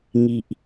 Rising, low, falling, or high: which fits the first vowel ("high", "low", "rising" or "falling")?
low